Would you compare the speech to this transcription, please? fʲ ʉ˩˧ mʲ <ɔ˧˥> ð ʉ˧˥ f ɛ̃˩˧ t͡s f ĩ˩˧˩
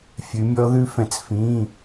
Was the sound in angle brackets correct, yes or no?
yes